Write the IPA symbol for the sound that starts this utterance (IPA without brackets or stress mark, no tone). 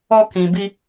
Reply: ɔ